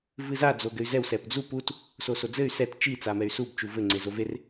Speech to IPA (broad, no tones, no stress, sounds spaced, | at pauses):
v ɨ z a d͡z o ɡ ɘ y̯ z ɛ w s ɛ p d͡z u p u t | s o s o d͡z ɘ y̯ s ɛ t t͡ʃ i t͡s a m ɛ y̯ s u b t͡ʃ u v ɘ ŋ͡ǀ e z o v e r